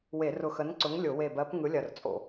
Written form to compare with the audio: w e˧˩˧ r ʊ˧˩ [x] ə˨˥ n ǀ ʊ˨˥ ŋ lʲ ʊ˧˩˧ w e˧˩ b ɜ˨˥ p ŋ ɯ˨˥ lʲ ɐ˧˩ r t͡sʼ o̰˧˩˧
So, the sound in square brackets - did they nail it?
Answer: yes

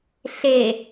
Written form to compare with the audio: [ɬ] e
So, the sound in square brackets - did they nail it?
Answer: yes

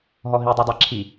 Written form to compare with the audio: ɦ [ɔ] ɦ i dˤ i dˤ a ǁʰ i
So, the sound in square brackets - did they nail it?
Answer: yes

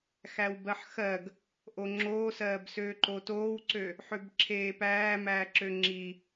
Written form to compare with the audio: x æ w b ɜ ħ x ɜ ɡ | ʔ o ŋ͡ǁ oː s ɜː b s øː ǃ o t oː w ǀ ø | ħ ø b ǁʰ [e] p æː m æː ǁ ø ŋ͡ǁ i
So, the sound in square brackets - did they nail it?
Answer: no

